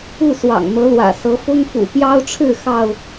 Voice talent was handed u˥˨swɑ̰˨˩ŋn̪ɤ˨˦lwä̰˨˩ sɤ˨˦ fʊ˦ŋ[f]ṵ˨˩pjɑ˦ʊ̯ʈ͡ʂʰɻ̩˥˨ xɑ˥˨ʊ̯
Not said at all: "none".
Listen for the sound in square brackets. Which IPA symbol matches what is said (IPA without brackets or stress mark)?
f